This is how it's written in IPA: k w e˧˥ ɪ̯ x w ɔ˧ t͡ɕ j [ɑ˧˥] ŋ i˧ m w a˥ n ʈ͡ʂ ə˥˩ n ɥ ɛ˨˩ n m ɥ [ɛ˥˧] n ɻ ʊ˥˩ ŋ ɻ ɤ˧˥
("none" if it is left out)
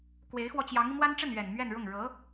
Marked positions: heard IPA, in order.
ɑ˧˥, ɛ˥˧

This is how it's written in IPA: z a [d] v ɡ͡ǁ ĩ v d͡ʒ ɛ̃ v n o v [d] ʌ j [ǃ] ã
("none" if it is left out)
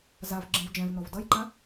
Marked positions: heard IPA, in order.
none, d, ǃ

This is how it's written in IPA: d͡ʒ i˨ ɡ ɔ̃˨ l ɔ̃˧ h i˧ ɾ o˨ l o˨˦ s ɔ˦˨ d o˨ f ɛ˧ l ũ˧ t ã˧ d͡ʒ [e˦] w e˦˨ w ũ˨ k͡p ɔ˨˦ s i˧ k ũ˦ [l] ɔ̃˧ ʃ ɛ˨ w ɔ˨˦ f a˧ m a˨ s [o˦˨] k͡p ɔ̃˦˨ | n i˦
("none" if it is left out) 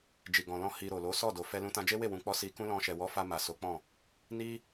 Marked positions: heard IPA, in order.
e˦, l, o˨˦

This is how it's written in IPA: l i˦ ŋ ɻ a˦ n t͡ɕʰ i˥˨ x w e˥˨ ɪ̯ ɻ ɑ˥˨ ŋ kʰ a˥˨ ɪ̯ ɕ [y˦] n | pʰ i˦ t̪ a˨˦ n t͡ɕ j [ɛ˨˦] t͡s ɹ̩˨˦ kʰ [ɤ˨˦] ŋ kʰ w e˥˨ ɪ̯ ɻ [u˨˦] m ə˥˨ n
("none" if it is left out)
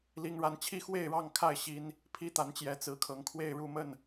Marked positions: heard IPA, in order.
i˦, ɛ˨˦, ɤ˨˦, u˥˨

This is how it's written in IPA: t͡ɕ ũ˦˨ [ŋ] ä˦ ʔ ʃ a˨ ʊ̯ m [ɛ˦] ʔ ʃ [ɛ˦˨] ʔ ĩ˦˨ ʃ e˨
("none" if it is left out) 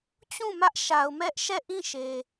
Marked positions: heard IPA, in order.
m, ɛ˦, ɛ˦˨

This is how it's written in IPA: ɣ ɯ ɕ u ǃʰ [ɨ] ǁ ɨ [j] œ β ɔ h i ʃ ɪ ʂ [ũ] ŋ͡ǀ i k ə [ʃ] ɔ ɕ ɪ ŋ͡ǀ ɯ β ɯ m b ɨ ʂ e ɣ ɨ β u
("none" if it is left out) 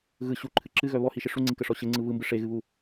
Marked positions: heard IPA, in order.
ɨ, ɣ, u, ʂ

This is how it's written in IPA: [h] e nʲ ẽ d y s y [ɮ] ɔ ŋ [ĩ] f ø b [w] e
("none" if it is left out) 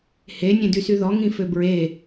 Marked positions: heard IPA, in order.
h, ð, ĩ, ɹ

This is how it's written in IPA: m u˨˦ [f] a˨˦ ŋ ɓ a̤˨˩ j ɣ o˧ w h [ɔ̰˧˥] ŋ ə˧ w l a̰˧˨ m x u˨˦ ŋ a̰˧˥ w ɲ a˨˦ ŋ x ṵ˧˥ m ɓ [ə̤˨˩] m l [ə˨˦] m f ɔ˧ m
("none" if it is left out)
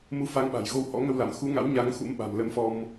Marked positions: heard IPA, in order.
f, ɔ̰˧˥, a̤˨˩, ə˨˦

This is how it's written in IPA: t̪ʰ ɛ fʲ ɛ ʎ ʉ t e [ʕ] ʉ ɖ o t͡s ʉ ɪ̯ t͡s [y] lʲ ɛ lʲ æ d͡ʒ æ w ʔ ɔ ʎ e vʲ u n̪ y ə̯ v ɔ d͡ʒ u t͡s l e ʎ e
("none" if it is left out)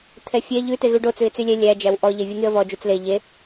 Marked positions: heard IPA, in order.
ɣ, y

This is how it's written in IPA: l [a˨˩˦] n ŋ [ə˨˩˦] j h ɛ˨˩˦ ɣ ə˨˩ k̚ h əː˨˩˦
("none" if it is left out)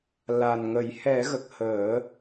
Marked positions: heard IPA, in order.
a˨˩, ə˨˩˦

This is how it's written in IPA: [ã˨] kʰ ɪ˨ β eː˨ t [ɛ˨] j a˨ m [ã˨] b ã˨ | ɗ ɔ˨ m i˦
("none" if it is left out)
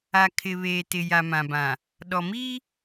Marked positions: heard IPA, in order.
a˨, ɪ˨, ã˨

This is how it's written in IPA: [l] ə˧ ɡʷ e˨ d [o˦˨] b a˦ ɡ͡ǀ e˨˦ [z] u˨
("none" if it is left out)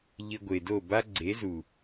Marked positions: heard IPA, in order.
ʎ, o˦˨, z

